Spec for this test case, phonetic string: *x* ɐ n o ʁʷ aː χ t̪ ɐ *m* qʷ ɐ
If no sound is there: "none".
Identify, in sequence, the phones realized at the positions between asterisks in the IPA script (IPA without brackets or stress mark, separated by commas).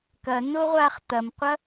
k, m